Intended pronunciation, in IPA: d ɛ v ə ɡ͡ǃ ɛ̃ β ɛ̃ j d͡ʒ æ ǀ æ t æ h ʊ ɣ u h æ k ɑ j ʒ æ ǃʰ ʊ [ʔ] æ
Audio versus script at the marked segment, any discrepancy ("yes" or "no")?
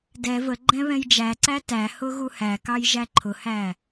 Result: yes